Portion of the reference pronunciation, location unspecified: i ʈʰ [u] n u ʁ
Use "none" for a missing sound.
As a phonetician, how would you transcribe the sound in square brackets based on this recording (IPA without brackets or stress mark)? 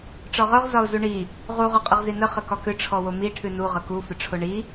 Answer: ʉ